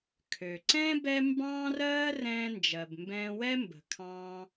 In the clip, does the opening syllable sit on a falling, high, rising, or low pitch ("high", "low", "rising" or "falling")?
low